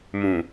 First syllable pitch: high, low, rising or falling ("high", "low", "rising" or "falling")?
low